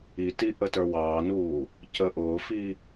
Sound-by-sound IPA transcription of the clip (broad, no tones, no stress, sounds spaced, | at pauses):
i t i ʔ ə t ə˞ w ɑː n uː | c ə ʔ ʊː f i